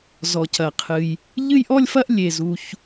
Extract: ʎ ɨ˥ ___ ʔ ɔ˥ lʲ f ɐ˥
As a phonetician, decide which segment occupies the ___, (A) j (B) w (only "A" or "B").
A